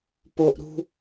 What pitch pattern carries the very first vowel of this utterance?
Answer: high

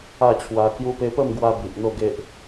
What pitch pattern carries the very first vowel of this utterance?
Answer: falling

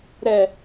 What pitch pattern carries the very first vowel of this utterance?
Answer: low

